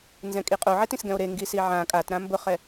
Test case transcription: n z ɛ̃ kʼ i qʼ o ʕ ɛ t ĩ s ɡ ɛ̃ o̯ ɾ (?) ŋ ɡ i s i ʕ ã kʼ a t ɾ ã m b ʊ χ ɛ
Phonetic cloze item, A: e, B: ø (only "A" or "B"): A